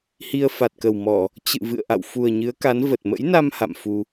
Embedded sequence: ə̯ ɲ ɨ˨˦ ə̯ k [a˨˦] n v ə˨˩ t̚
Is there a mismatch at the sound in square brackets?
no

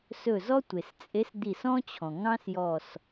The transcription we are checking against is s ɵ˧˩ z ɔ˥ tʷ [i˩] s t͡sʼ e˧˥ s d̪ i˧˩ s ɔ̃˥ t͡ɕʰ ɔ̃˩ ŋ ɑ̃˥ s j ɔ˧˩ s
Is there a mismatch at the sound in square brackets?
yes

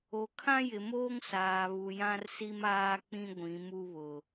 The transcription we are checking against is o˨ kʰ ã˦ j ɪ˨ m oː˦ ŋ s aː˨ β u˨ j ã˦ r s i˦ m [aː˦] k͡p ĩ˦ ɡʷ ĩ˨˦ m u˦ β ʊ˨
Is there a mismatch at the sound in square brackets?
no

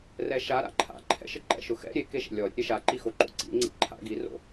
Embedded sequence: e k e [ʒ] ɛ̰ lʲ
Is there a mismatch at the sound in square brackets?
yes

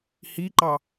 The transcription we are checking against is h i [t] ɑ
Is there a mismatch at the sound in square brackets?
yes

